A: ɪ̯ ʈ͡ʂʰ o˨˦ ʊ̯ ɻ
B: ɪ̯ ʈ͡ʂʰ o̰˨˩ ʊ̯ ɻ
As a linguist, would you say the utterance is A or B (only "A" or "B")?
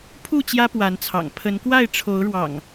A